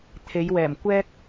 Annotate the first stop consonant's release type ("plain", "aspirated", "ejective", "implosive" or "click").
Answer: aspirated